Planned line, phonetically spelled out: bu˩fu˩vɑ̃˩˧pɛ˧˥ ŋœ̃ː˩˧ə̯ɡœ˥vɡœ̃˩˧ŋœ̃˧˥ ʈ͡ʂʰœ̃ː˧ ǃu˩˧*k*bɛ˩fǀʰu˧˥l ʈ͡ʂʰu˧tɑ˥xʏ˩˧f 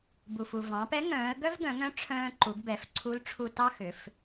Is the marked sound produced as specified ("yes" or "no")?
no